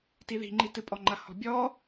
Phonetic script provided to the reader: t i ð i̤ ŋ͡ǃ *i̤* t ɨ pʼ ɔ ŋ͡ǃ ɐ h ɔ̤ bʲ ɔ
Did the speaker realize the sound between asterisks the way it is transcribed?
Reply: no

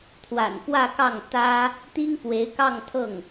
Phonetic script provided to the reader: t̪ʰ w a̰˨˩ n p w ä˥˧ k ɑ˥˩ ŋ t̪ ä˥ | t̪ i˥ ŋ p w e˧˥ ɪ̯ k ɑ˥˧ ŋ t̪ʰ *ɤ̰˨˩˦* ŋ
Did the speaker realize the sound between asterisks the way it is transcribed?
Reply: no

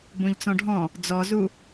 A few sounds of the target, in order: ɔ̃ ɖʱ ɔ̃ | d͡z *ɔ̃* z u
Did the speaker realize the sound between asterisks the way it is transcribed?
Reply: no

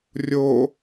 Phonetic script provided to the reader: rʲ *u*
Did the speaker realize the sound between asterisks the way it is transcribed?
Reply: no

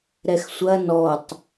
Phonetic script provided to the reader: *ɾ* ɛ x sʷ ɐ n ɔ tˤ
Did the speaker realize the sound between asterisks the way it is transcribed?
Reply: yes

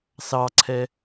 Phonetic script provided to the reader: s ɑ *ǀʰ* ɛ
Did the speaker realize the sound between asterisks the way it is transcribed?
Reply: yes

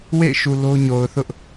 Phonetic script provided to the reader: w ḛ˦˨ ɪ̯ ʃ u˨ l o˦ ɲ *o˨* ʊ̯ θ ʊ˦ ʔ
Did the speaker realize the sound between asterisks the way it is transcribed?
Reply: yes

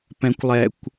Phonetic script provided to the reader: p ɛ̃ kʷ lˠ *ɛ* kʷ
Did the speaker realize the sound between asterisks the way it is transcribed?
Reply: yes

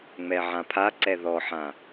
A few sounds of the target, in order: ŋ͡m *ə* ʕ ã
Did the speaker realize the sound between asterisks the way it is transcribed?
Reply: no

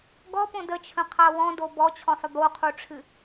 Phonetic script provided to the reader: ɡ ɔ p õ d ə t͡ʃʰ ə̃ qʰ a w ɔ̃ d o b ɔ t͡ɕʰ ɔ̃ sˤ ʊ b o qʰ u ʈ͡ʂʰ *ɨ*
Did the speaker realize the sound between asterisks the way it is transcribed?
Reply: yes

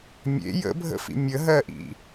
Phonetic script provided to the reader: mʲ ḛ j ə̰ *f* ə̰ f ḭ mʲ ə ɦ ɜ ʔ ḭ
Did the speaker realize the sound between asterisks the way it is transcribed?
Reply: no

